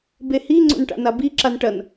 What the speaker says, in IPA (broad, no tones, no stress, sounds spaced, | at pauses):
b e h i ŋ͡ǀ o̰ n ʈ a̰ n a b i ǁ a n ʈ ɐ n